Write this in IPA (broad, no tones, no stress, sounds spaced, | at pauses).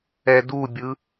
ɛ d u bʲ ɯ